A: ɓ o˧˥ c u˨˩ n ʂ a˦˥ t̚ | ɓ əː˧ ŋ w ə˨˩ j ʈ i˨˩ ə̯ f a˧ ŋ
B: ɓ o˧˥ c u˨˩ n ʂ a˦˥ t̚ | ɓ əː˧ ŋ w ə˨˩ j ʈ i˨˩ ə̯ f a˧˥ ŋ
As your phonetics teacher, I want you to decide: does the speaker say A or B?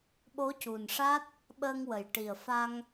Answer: A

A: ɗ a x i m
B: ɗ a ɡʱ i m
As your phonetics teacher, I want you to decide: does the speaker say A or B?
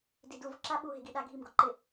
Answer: B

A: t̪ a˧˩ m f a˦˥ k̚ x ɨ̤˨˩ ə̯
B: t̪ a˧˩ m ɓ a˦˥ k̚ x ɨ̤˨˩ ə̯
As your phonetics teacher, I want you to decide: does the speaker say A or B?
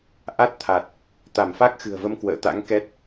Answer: A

